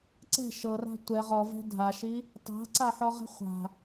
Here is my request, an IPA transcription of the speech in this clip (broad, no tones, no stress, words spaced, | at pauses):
ǀɛ̤ ʃɤra̤ tʷɛ ʁɔvɛ̤ dʱaʃi | tˤa̤ǀaħɔʁɛ̤ χʷa̤